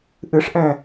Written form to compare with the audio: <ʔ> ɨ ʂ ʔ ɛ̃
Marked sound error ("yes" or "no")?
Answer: no